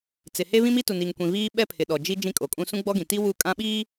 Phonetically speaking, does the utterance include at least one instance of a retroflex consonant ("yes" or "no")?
no